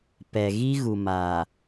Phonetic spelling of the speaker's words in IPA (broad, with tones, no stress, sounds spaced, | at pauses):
p ɛ˨ ɣ i˦ ɣ u˨ m aː˨